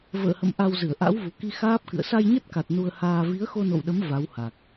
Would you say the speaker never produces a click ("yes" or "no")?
yes